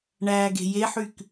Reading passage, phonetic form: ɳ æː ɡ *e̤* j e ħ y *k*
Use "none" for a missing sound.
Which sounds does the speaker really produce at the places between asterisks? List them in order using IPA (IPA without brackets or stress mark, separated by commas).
e̤, k